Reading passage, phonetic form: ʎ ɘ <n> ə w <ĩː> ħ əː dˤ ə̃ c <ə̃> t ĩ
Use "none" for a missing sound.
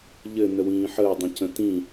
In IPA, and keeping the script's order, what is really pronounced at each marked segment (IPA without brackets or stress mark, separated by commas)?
n, ĩː, ə̃